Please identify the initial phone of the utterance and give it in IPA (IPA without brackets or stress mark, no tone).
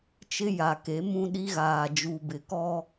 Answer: t͡ʃ